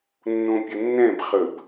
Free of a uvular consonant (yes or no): no